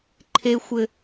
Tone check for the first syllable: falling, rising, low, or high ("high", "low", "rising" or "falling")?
high